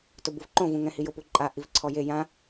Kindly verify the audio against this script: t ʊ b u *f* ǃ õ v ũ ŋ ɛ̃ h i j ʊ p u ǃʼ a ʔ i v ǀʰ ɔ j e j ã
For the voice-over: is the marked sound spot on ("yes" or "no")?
no